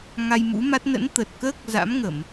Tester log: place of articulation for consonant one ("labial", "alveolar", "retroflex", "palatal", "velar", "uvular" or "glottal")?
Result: velar